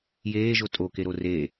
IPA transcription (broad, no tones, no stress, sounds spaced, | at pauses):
j eː ʒ o tʼ o k e ɾ o r e